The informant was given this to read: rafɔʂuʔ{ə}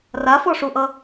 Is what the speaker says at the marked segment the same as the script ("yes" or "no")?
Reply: no